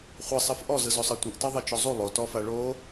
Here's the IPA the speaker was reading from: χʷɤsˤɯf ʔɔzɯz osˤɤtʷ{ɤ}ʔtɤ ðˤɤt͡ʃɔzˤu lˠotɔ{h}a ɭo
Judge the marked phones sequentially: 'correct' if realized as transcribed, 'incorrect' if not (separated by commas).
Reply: incorrect, incorrect